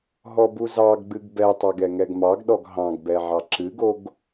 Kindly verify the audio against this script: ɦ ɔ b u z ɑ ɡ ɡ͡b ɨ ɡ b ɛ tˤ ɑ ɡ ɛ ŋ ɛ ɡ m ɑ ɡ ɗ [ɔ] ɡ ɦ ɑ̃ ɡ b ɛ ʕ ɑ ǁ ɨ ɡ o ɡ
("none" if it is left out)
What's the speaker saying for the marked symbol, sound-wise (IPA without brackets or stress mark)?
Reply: ɔ